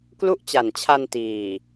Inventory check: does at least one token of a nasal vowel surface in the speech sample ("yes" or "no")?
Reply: no